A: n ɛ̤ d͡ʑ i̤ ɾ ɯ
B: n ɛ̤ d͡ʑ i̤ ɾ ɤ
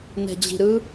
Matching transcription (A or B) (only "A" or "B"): A